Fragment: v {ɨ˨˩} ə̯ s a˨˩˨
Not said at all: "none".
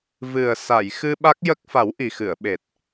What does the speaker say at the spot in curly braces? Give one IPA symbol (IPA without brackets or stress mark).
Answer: ɨ˨˩